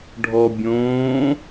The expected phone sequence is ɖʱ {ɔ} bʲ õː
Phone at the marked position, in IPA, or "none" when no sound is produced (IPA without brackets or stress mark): ɔ